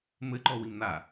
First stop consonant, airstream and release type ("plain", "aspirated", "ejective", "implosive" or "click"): click